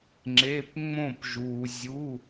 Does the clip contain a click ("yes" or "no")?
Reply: yes